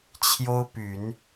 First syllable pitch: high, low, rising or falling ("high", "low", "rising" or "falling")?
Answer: high